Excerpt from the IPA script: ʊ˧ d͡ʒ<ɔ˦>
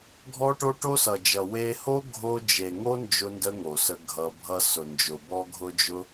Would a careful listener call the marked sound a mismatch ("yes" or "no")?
yes